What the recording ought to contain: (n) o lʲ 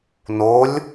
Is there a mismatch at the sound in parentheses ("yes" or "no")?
no